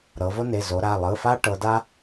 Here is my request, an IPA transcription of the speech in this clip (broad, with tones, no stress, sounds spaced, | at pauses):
ɾ ɤ˩˧ v o˦ n e˩˧˩ z o˩˧ ɾ a˩˧˩ lˠ ɯ˩˧˩ f a˦ ʈ ɤ˩˧ d a˦